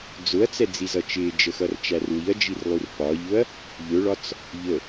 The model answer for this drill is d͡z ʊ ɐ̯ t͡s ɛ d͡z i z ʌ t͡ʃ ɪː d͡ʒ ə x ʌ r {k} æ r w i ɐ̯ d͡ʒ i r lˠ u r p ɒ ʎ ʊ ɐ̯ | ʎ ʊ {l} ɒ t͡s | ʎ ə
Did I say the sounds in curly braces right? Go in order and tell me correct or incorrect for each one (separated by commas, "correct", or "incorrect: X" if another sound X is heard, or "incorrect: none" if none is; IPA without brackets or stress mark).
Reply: incorrect: t͡ʃ, incorrect: ɭ